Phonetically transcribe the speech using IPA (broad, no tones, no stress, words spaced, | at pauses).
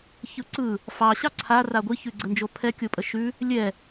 çɯǀɯ | fɑ ɕɑǀʰa raɡʷi çʉɡ͡ǀənd͡ʒopʰɛ kʲopʼəʃʉ | lʲɛ